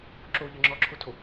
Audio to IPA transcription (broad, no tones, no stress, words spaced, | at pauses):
ǁoʎə ŋ͡ǁɔǁʰotʰo